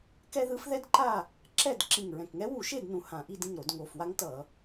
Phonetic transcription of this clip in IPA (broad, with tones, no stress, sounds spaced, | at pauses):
k ɛ˥ ð ɯ˧˥ f ð ɛ˥ d ǃ a˥˨ | ǁ ɛ˥˨ d ǁ ĩ˨˩ ŋ ɹ ɛ̃˨˩ k ŋ ɛ˧˥ w u˧˩˧ ʃ e˥˨ d n ũ˨˩ h ã˧˩˧ ʔ i˥˨ d ĩ˥˨ ŋ ɾ o˧˩˧ d ŋ o˨˩ f w a˥ ŋ t ʌ˧˩˧